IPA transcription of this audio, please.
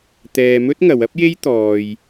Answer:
t̪ ɛː˧ m ɵ˥ t̚ ŋ ɐ˨˧ w ɐ˥ p̚ j e˥ j t̪ ɔː˧ j

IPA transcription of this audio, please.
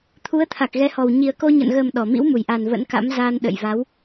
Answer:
t̪ʰ u˨˦ ə̯ t̪ʰ a˨˩ k̚ ɣ ɛ˨˦ h ɔ˨˩ w ɲ i˨˩ ə̯ k o˧ ɲ ə̰˧˨ n ɣ ə˨˩ m ɗ ɔ˧˩ m ḭ˧˥ w m u˧˩ j ʔ a˨˩ n v ə̰˧˥ n k a̰˧˥ m z aː˧ n ɗ ə̰˧˨ j v a˨˦ w

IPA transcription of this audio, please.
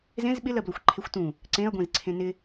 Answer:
z ẽ z ɓ ɪ l ɜ b l o xʷ ǃʰ e xʷ t ũ | ǀ ẽ ɐ̯ ɡʷ ẽ z ǀʰ ẽ n ɪ

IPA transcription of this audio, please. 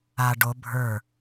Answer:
a ɖ o bʱ ə˞

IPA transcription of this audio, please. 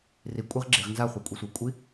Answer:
r i kʷʼ e ʁ ɡ͡ǁ i ʁ n z a χʷ e kʷʼ i sʷ ɛ kʷʼ i

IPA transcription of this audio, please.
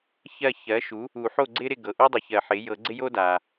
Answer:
ç ɜ˥˨ ç ɜ˩˥ ʃ u˩˥ | u˨˩˦ ħ o˥˨ ɡ͡ǀ ɪ˥ ɾ ɪ˥˨ ɡ ɤ˩ ʔ u˥ dˤ ɨ˩ ç ɜ˨˩˦ ħ ɪ˩˥ j ɤ˨˩˦ ɡ͡ǀ ɪ˥ j o˥ d a˩

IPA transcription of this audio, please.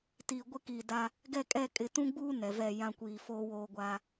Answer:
t iː˨ ɡʷ ɪ˦ k iː˨ d a˦ | ɡ ɛ˦˨ kʼ ɛ˦˨ kʼ ɪ˨ t ũ˦ ɡ͡b uː˦ n ɛ˨ v ɛ˦˨ j ã˦ kʷ iː˨ f oː˦ w oː˦ ɡʷ a˦

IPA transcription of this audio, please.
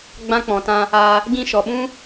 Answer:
ɡ͡b ã˧ k͡p ɔ̃˨ t ã˧ | a˧ | ɡ ĩ˧ ʃ ɔ˨ ɓ ũ˦

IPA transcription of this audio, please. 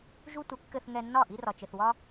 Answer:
ʒ u˧ tʷ ɘ˩˥ kː ɘ˧ θ ŋ ɛ˧ nː ɒ˥˩ ʔ i˧ r ɒ˩ t͡ʃ ɘ˩ θ w ɒ˧

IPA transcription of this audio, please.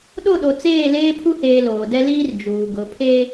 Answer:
ɗ o˦˨ ɗ o˨ t͡s eː˦˨ l eː˦ pʰ u˦ h eː˨ l oː˨ d ɛ˦ l iː˦ r d͡ʒ uː˨ ɡ ʊ˨˦ pʰ e˦

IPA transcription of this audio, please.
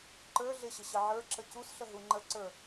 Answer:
ǃ ə˞ ɮ ɪ ɕ ɪ ɕ ə ʕ ə˞ ǁ ə c u s ɬ ə ɦ u ŋ͡ǃ ə ǀ ə˞

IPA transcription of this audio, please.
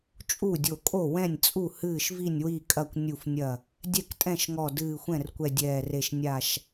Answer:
t͡ʃʼ u˥˩ dʲ o˧˩ kʼ o˥˩ w ɛ̃˥˩ nʲ t͡sʼ u˥˩ h ɨː˥˩ ʃ v i˥˩ nʲ w i˥˩ kʼ ɐ˥˩ kʷ nʲ u˥˩ f nʲ ɐ˥˩ | dʲ ɛ˥˩ k tʼ ɛ̃˥˩ ʃ ŋ ɔ˧˩ d ɨː˧˩ xʷ ɛ̃˥˩ r kʷ ɛ˧˩ dʲ ɛː˧˩ r e˧˩ ʃ nʲ a˧˩ ʃ

